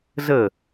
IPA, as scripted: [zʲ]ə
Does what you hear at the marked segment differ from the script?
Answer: yes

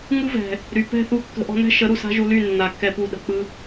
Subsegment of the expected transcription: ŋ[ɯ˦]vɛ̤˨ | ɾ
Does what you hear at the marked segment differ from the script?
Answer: no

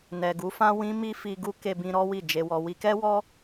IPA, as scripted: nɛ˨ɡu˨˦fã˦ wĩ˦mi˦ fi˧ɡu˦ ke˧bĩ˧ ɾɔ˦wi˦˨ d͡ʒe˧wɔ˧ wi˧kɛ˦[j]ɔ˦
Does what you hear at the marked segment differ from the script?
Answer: yes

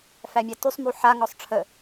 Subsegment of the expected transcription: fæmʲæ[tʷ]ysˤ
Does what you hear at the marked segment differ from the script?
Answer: yes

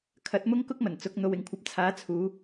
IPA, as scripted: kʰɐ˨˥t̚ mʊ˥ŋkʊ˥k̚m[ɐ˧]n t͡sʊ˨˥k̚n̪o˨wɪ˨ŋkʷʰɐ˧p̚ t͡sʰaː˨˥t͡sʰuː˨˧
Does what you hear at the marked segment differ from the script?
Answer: yes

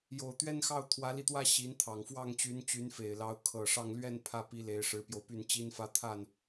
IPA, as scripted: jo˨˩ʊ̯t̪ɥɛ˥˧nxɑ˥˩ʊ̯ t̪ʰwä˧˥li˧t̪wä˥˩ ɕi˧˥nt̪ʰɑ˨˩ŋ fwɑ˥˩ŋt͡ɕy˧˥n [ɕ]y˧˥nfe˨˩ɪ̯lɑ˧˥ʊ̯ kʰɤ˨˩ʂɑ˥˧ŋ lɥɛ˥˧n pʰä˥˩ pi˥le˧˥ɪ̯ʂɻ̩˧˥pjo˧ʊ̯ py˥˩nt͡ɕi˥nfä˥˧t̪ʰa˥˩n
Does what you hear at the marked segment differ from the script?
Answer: yes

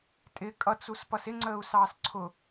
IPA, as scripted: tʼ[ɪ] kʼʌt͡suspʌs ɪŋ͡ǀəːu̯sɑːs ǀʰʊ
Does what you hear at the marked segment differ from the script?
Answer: no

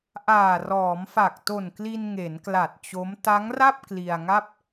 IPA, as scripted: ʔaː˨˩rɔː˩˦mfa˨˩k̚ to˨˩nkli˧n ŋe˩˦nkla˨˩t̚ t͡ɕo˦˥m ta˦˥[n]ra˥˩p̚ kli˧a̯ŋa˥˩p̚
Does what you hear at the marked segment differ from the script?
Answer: yes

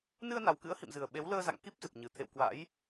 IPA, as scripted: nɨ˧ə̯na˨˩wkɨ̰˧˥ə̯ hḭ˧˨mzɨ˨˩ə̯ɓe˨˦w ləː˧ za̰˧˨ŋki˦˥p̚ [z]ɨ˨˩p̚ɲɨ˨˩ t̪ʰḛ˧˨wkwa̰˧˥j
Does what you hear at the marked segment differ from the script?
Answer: no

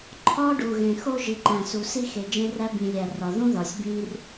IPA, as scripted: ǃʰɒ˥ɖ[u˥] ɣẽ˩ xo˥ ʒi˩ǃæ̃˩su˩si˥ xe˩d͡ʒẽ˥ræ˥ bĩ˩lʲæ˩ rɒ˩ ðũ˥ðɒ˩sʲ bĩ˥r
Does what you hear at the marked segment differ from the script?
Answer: yes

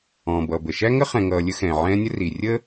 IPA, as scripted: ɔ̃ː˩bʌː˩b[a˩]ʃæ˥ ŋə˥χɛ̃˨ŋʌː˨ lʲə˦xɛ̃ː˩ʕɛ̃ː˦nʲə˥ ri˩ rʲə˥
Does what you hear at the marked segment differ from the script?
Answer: yes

